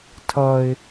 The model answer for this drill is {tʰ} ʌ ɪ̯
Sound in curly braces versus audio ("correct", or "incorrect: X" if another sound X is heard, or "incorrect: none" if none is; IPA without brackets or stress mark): correct